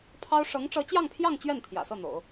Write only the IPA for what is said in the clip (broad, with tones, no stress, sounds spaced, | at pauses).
pʰ ɑ˥ ʊ̯ ʂ ɤ˧˥ ŋ ʈ͡ʂ ɤ˧˥ t͡ɕ j ɑ˥˧ ŋ pʰ j ɑ˥˧ ŋ t͡ɕ ɥ ɛ˥˩ n t̪ʰ j ä̰˨˩ s ɤ˥˩ n̪ o̰˨˩˦ ʊ̯